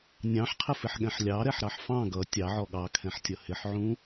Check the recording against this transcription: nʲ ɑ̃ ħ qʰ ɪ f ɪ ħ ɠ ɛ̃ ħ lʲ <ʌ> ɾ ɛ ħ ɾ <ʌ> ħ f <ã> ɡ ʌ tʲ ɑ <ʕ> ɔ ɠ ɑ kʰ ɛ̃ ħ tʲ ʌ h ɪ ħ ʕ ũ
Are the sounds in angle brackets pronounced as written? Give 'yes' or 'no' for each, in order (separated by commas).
no, no, no, yes